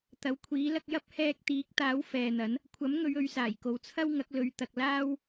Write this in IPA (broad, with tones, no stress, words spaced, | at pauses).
t̪ɐ˨˥wkʷʰiː˨˥ lɐ˧k̚jɐ˥p̚ hɛː˧k̚t̪iː˨˥k̚t̪aː˨˥w fɛː˨n̪ɐ˨˥n | kʷʰɐ˨˥mŋɵ˨˧ɥ ɵ˨˥ɥsaː˨˩jko˨w t͡sʰɐ˥w ŋɐ˨˥k̚lɵ˨˧ɥ t̪ɐ˨k̚laː˥w